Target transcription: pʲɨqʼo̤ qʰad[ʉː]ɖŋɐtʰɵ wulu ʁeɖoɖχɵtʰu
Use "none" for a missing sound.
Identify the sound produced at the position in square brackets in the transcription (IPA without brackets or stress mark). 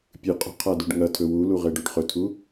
ʉ